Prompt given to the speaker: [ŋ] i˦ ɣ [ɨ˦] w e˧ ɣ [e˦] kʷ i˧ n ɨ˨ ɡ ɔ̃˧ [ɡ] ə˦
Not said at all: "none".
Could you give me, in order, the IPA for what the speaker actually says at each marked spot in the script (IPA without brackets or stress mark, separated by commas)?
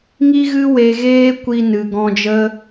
ŋ, ɨ˦, eː˦, d͡ʒ